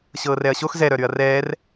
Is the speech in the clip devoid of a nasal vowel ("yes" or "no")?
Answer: yes